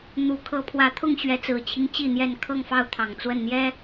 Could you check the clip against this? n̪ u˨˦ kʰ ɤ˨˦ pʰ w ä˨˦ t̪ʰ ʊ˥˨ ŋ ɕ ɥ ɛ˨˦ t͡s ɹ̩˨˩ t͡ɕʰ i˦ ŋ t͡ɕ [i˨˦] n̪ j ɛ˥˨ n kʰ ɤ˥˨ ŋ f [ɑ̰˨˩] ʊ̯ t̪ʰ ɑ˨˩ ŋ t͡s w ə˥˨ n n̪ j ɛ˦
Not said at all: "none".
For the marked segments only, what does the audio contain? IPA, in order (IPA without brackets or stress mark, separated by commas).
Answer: i˥˨, ɑ˥˨